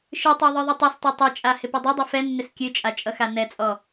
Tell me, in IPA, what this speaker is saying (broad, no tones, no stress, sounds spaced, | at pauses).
ʃ ɨ tˤ ɛ ðˤ ɨ ðˤ ɨ tˤ ɛ s tˤ ɛ tˤ ɛ t͡ʃʼ a h ɪ p ɨ dˤ ʌ dˤ ɛ f ɛ nː ɪ s kʲ ɨ t͡ʃʼ a t͡ʃʼ ʌ x a n ɛ t͡sʼ ɔ